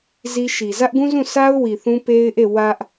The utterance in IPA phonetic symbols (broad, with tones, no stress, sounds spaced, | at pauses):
z i˦ ʃ i˨ z ä˦ ʔ ɡ ũ˦ z ũ˦˨ sʰ a˦ ʊ̯ w i˨ θ ũ˦ p e˦ ɪ̯ ʔ e˦˨ w ä˦ ʔ